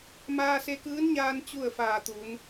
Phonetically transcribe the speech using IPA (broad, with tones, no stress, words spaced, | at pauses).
maː˧se˧kɯː˧˥nɲaː˧n t͡ɕu˥˨ə̯ faː˧˩t̪uː˩˧n